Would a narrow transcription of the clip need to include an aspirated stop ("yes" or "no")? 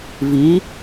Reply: no